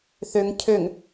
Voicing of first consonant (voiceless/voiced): voiceless